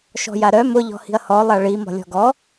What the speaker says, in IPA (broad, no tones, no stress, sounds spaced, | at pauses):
ʃ ɔ̤ j a ɾ œ m ʊ ʎ ɔ̤ h i̤ ɐ̯ h ɔ lˠ a ɭ i m ɔ̤ lʲ ɔ̤ ɡ ɔ